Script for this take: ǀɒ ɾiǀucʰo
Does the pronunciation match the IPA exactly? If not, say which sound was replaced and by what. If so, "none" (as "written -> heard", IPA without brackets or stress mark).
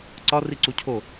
ɾ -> r